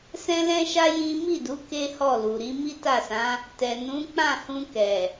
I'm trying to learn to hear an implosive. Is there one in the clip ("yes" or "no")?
no